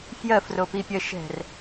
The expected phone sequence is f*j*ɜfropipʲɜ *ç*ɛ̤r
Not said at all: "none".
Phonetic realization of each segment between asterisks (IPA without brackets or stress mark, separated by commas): j, ʃ